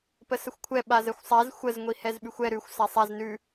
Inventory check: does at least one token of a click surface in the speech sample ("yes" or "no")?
no